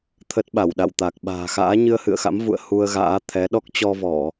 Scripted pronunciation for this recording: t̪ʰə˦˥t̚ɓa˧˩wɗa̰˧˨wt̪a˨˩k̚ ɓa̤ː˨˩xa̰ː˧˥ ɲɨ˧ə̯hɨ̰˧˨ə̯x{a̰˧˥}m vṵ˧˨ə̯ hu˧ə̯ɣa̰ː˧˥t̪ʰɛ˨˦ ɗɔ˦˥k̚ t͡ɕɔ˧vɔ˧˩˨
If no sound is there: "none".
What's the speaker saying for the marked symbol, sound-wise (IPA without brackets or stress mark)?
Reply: a̰˧˥